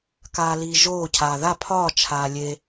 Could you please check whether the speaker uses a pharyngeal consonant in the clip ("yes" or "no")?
no